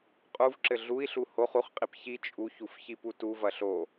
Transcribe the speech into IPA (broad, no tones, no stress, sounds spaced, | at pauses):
qʼ u v ǁ ɘ ɮ u i̯ ɬ u h o χ u χ qʼ i p ç i t͡ʃʼ u ç u f ç i p u t u v ɐ ɬ o